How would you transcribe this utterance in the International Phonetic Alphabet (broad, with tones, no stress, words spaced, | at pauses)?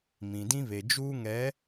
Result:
mĩ˨dĩ˦βe˨ d͡ʒuː˦ŋɛ˨˦